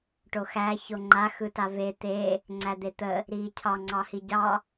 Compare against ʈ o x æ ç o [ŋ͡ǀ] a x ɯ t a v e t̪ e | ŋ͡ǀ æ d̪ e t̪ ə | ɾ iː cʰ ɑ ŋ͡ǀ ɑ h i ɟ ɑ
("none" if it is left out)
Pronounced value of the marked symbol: ŋ͡ǃ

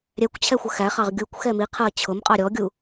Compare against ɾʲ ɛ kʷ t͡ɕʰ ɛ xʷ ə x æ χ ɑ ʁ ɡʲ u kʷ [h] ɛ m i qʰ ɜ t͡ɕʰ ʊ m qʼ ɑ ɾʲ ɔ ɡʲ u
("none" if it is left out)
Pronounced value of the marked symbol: x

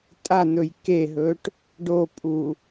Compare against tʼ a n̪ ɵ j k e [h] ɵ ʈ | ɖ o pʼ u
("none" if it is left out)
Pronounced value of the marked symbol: ɦ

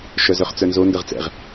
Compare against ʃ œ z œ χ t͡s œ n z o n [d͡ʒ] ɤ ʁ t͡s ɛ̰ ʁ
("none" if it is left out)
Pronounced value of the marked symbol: d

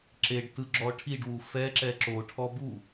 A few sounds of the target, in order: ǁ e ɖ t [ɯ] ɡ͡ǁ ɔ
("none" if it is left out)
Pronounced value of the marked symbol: ɯ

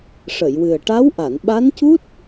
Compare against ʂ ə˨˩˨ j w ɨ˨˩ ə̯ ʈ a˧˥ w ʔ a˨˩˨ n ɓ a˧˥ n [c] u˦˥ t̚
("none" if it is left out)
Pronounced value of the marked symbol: c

